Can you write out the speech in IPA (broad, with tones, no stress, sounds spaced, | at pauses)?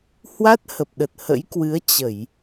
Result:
h w a˦˥ t̚ h ə˨˩ p̚ ɗ ə˨˩ t̚ h ə̰˧˥ j k w ɨ˨˦ ə̯ t͡ɕ ə˧˩˨ j